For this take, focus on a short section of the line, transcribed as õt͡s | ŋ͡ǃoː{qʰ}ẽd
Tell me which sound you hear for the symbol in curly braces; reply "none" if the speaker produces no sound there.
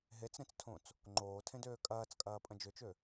tʰ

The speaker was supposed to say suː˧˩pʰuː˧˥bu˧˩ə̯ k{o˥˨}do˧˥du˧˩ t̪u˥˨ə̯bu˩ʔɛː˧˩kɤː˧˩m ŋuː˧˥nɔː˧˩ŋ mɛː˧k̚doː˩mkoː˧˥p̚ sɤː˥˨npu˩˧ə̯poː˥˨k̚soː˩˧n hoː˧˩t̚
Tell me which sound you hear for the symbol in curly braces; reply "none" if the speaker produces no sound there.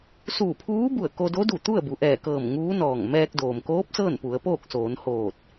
o˧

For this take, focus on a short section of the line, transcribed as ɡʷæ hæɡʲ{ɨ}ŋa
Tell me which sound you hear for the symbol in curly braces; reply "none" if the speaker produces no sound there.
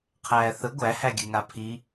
ɨ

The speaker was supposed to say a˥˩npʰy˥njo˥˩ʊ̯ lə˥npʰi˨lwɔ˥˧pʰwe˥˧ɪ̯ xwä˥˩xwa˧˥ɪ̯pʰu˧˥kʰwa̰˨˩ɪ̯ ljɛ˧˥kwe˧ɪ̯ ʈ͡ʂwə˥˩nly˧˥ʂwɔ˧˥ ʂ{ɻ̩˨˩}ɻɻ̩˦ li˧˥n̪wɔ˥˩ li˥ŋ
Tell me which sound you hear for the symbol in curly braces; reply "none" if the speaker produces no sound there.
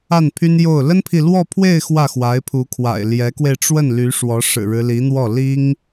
ɻ̩˨˩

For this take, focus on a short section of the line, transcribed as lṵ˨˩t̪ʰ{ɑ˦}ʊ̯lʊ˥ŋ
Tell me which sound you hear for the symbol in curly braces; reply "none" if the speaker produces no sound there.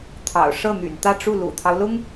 ɑ˦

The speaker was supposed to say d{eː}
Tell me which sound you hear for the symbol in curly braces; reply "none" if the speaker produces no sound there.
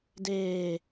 eː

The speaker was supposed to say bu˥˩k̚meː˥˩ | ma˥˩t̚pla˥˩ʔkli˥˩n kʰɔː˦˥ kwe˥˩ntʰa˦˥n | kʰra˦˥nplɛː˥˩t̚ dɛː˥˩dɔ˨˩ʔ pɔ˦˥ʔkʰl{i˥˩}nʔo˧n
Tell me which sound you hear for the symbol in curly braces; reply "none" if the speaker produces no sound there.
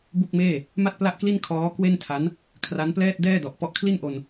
i˥˩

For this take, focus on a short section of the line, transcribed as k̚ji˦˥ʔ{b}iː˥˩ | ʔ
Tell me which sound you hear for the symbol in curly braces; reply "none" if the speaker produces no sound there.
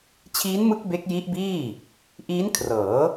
b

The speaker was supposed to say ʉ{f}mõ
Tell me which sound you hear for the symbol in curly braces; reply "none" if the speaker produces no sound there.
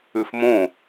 f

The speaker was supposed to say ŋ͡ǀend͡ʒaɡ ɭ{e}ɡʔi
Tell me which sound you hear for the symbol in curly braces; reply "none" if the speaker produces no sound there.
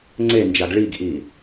i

